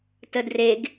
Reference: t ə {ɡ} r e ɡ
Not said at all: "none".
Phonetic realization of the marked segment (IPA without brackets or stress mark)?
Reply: d